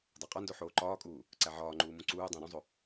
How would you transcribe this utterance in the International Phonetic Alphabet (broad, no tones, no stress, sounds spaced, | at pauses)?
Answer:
dˤ æ qʼ ɒ n d o ħ oː ǃ ɒː kʼ uː | ǀ æ ʕ ɒː ŋ͡ǃ uː m ũ ǀ uː dˤ æ̃ ɾ ũ zˤ o